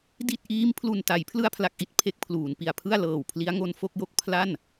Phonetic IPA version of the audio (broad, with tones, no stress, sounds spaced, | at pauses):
d i˥˩ t̚ ʔ iː˦˥ m pʰ l u˨˩ n t a˩˦ j pʰ l ɯ˧ a̯ pʰ l a˨˩ k̚ ʔ i˦˥ t̚ pʰ e˦˥ k̚ pʰ l uː˩˦ n p i˨˩ a̯ pʰ ɯ˥˩ a̯ l ɤː˨˩ w pʰ l i˦˥ a̯ ŋ o˧ n f o˥˩ k̚ j o˥˩ k̚ pʰ l a˥˩ n